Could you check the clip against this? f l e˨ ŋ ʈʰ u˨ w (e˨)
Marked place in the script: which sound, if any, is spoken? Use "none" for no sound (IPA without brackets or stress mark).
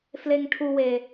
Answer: e˨